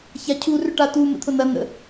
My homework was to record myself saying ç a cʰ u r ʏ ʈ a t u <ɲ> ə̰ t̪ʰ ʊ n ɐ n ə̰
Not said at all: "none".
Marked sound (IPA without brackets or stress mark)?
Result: m